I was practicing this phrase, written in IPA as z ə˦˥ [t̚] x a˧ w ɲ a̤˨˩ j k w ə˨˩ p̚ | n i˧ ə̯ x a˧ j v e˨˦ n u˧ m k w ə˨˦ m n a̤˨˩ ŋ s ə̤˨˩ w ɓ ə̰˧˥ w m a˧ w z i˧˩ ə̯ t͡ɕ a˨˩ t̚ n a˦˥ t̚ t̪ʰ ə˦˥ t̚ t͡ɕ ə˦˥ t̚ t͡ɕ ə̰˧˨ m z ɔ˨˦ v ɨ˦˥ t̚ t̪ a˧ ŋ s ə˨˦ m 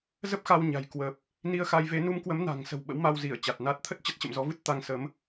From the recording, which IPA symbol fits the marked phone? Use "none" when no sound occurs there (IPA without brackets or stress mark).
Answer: p̚